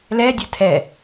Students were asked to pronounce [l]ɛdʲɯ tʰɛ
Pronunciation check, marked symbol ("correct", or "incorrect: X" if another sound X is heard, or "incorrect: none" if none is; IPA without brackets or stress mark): correct